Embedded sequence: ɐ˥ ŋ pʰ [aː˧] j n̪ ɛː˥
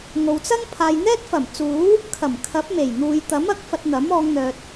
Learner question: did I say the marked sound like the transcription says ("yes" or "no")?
no